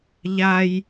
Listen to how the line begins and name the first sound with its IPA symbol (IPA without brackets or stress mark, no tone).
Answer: ʎ